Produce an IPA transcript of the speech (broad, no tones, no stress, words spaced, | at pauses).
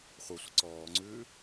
χʷɤsʷə ǀɔːŋ͡ǀʉː